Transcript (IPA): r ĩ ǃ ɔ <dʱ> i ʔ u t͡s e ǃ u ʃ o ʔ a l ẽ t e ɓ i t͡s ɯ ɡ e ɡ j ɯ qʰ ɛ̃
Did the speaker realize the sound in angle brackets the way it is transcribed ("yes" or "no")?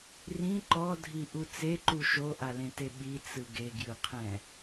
yes